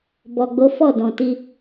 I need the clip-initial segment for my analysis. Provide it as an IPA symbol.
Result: b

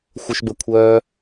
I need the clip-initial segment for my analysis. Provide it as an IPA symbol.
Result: xʷ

